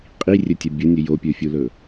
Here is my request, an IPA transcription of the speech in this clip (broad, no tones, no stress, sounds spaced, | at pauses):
qʼ i rʲ ɵ tʲ ɐ bʲ ʊ nʲ ɵ j o pʲ ə˞ fʲ u l ɵ